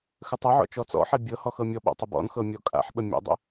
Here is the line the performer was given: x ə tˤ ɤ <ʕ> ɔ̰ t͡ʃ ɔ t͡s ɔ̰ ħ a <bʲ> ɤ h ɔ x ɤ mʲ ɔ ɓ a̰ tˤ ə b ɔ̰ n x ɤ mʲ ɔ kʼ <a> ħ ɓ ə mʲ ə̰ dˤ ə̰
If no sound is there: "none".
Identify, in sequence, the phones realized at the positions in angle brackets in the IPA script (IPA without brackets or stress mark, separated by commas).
ʕ, bʲ, a̰